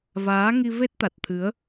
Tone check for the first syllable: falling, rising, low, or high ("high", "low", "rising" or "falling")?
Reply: rising